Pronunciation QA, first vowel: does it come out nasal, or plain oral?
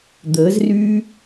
oral